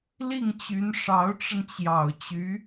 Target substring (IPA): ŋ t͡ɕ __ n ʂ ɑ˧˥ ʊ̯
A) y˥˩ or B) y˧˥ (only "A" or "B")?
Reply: B